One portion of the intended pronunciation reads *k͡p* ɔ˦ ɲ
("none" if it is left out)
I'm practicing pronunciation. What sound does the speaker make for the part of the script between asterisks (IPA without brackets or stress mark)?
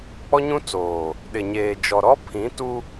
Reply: k͡p